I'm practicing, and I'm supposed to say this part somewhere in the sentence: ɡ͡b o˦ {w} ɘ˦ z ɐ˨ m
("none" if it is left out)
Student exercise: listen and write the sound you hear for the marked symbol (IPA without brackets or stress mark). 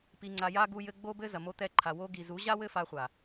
b